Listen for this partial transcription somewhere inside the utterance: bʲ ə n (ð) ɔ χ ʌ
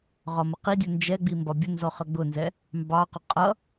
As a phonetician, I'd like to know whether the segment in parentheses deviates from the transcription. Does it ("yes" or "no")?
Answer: yes